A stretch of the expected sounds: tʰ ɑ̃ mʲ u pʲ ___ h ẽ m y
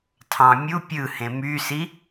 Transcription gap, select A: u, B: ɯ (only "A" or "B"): B